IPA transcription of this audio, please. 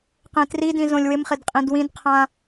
q ẽ t r i d ĩ z õ lʲ w ɪ m χ ɪ d qʼ ĩ d w ĩ d qʰ ã

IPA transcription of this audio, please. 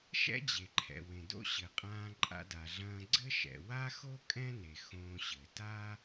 ʃ ɛ̰˥ d͡ʑ e˩ ǃʰ ɛ̰˩ w ẽ˩ d o̰˥ ɕ ɘ˩ qʼ ãː˧ ǃʼ a̰˧ d a˩ ɮ ɐ̃ː˧ ɡ͡ǀ ɘ˥ ʃ ɛ̰˩ w a˥ x o˥ kʼ ɛ̃˥ n e˩ x õː˧ ɕ ɘ˩ t a˥

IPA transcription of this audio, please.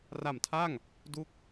r a˨˩ m tʰ a˥˩ ŋ | d u˦˥ k̚

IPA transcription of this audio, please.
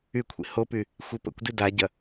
y kʷʰ ḭ h o p y | xʷ i p ə̰ kʷ d i d a ɟ ɐ

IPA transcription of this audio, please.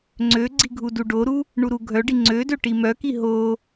ŋ͡ǀ ø ɡ͡ǀ i ɡʱ u d u ɖ o ɾ u | ɳ u ɾ u ɡʱ œ ɖ i ŋ͡ǀ ø d ø ʈ i m œ k i ɦ o

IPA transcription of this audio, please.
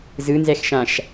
z ɯ n z ɛ x ʃ ã ʃ

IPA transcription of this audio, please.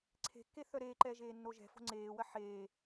ǀʰ e̤ kː e θ œ ɾ eː ǃ ɛː ʒ eː nː o ʒ ɛ̤ f o̤ ŋ͡ǀ eː w ɐ ħ eː

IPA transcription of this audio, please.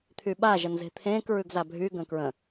t̪ʰ y ɓ a ʒ ə n z e̤ t̪ʰ ẽː k ɹ ʉ ɡ z a bʱ y ɡ ə̃ k ɹ ə̃

